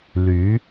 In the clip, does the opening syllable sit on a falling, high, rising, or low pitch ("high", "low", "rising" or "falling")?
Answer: rising